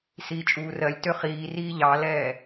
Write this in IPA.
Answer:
s iː t͡ʃʼ uː r ɜ lʲ t ø χ iː r iː ʎ ɑ l ɛː

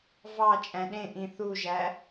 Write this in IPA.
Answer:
v ɑ t͡ʃʼ æ̃ ɗ ẽ ʔ ĩ θ u ʒ æ

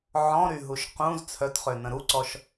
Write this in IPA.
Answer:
ʕ ɔ̃ ɾ y ɦ u ʃ q ũ z t͡sʰ œ t χ ø n ə̃ ɾ u ǀ ɔ ʃ

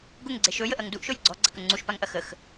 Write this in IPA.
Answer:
ɡ ʊ ŋ ɡ͡ǀ e ʃ ɵ j ə ʔ ɐ ŋ d u ʔ ʃ ɵ j ɡ͡ǀ ɔ ɡ͡ǀ ɐ k ə ŋ͡ǀ u ʃ p a ŋ ʔ ɐ x ə x

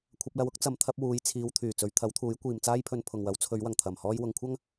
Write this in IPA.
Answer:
kʷʰ ɐ˧ p̚ l ɐ˧ w ʊ˥ k̚ t͡s ɐ˨˥ m t̪ʰ ɐ˨˥ p̚ w uː˨˧ j t͡sʰ iː˨˧ w t̪ʰ yː˨˩ t͡s ɵ˨˧ ɥ t̪ʰ ɐ˨˥ w t̪ʰ uː˨˥ j kʷ iː˨ m t͡s aː˥ j pʰ ɵ˧ n pʰ ʊ˨ ŋ w ɐ˨˥ w t͡sʰ ɵ˨˧ ɥ w ɐ˨˩ ŋ t̪ʰ ɐ˨˩ m h ɔː˧ j w ʊ˧ ŋ kʷʰ ɐ˥ ŋ

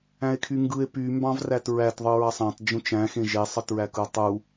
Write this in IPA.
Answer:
æ̃ e̯ kʰ y ŋ ɡ ɯ e̯ p y m b ɑ̃ v r æ t ɹ æ t ðˤ ɯ ɹ ɑ sˤ æ̃ tˤ d͡ʒ ũ t͡ʃ æ̃ x ẽ ʒ e sˤ ɯ t ɹ æ k ɯ o̯ tˤ u

